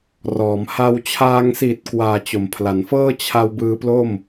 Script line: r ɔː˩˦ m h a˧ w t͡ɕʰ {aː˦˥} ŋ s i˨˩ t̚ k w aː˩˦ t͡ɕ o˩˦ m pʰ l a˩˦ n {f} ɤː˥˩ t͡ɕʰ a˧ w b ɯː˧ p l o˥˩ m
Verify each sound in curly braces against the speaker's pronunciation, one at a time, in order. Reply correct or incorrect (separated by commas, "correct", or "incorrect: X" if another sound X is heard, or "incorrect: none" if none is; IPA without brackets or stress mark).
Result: incorrect: aː˧, correct